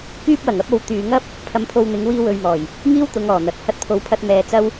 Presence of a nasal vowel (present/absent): absent